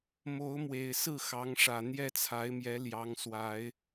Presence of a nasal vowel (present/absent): absent